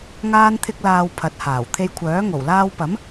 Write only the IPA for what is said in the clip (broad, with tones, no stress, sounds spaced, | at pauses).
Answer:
ŋ aː˥ n t̪ʰ ɪ˥ k̚ l aː˧ w pʰ ɐ˨˥ t̚ h aː˨˩ w t̪ʰ e˧ j kʷʰ œː˨˥ ŋ o˨˩ w l aː˧ w p ɐ˨˥ m